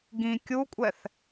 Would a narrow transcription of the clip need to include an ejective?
yes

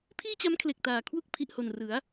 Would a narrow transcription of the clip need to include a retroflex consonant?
no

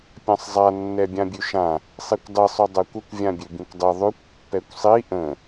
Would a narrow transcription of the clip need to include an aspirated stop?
no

